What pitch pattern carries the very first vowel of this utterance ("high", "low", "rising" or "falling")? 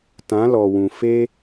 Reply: rising